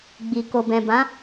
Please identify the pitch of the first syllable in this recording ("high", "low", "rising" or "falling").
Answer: low